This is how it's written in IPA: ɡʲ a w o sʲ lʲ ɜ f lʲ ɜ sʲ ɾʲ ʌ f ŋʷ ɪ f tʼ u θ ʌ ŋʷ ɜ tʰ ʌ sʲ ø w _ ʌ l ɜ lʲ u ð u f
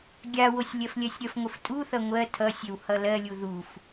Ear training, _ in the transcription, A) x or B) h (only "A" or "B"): B